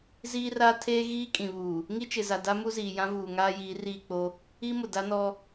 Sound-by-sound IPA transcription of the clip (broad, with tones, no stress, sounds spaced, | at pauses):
z iː˦ r aː˦ tʰ eː˦ ɣ iː˦ kʼ ĩ˨ β uː˨ | ŋ i˦ t͡ʃ ɪ˨ z a˨ d a˦ m u˦ z iː˨ j ã˦ v uː˨ ŋ aː˦ j iː˨˦ r iː˦˨ k͡p o˦ | i˦ m ʊ˨ d a˦ n ɔ˦